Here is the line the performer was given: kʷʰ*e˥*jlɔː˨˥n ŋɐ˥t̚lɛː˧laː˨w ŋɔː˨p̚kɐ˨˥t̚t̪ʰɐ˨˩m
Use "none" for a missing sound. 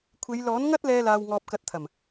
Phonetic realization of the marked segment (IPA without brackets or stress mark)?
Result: e˨˧